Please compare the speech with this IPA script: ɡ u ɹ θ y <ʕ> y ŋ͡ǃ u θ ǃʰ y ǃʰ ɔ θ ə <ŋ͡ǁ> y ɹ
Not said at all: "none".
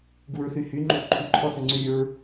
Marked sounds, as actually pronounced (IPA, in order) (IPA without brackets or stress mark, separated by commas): h, ŋ͡ǀ